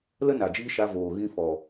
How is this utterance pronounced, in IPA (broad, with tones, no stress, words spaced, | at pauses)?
lə˦na˨d͡ʒiː˧ ʃa˧voː˨ ɣĩ˧fɔ˨